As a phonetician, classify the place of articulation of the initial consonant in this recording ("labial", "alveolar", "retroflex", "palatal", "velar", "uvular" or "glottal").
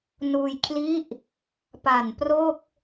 alveolar